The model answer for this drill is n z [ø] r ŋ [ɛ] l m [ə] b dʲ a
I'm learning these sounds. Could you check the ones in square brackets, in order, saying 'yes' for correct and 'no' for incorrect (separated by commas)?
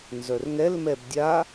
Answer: no, yes, no